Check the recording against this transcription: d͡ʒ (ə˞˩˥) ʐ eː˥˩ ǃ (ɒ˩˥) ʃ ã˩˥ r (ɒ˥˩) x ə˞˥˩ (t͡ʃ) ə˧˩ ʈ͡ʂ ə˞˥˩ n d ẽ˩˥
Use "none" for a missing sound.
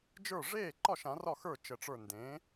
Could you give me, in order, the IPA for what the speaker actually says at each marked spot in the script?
ə˞˥˩, ɒ˥˩, ɒ˥˩, t͡ʃ

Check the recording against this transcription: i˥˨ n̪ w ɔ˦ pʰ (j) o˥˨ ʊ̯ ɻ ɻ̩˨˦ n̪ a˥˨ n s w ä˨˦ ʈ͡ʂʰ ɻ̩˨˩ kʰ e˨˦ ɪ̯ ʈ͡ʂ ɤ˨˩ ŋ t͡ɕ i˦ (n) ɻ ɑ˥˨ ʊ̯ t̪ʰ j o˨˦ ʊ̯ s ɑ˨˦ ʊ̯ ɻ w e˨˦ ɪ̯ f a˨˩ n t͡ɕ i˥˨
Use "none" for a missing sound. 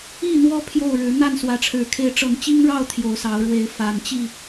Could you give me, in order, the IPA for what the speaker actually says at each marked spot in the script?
j, ŋ

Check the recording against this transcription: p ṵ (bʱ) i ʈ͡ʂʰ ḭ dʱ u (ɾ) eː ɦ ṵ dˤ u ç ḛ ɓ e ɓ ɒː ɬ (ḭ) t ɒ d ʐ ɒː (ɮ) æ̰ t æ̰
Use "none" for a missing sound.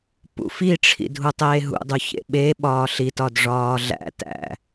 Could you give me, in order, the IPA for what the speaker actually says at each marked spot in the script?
f, tˤ, i, ɮ

